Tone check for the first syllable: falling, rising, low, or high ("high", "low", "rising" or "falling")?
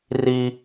high